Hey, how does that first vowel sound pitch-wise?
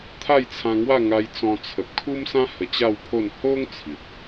falling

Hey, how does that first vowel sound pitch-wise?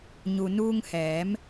low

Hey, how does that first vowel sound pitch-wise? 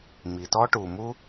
low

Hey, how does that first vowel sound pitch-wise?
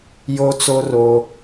high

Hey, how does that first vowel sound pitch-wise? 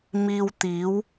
low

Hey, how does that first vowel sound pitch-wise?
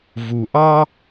low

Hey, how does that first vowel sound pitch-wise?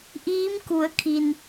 rising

